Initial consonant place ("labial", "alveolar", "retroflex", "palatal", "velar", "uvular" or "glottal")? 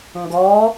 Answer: velar